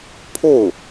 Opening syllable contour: falling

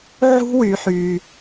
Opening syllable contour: high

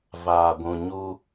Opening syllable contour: low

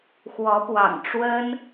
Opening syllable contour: rising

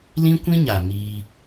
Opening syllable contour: high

